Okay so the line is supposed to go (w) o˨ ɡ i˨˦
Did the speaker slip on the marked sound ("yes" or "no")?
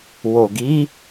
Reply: no